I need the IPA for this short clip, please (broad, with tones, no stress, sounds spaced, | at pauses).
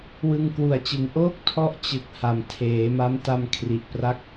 w ɯ˧ ŋ k w u˨˩ a̯ t͡ɕ ɯ˨˩ ŋ ʔ oː˥˩ k̚ tʰ ɔ˦˥ ʔ t͡ɕ ɯ˨˩ k̚ h a˨˩ m tʰ eː˩˦ m a˦˥ m t a˧ m kʰ r i˨˩ ʔ p r a˦˥ k̚